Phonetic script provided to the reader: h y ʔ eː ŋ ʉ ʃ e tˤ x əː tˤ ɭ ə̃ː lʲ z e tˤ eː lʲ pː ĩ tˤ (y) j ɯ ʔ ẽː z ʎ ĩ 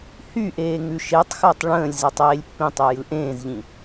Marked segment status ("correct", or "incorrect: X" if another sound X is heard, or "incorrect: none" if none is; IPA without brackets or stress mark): correct